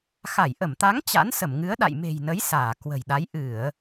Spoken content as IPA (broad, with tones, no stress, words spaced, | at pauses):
xa˧˩jʔə˧˩mt̪a˨˦ŋ t͡ɕa̰˧˥nsə˧˩mŋɨ˨˦ə̯ ɗa̰˧˨jme̤˨˩jnə˨˦j saː˧˩ kwə̤˨˩jɗa˨˦j ʔɨ˧˩˨ə̯